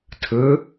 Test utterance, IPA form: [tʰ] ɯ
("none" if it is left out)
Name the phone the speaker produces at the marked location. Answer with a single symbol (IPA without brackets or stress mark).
tʰ